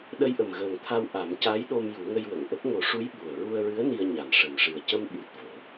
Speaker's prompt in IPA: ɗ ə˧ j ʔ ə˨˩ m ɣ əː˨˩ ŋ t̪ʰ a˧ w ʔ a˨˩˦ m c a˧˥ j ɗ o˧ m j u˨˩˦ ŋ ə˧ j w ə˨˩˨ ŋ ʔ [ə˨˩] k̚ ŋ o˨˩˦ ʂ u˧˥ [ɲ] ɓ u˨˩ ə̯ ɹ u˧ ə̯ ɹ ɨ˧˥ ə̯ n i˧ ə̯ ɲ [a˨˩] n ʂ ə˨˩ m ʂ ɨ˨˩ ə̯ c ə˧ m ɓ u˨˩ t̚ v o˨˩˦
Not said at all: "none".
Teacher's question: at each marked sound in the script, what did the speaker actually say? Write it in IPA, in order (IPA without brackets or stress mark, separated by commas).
ə˦˥, j, a˨˩